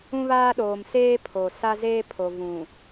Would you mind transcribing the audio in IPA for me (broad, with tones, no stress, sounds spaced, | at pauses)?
ũ˦ β aː˦ ɗ oː˨ m s eː˦ pʰ o˨ s a˦ z eː˦ pʰ o˨ v ũ˨